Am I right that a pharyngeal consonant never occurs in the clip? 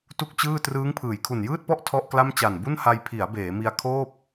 yes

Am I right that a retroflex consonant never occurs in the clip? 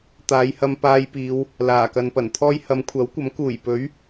yes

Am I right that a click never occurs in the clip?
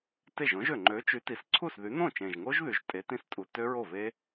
no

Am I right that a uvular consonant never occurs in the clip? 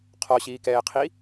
no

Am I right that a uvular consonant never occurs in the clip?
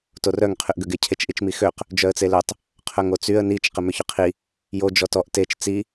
no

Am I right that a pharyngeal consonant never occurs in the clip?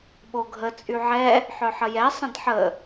no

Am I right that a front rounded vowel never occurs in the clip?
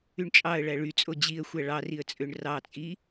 no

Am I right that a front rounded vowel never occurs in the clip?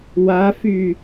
no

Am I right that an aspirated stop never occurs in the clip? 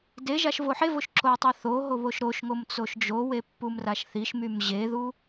yes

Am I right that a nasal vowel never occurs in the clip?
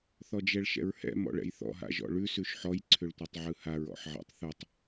yes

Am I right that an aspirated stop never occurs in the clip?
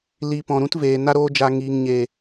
yes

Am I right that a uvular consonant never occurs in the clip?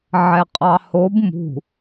no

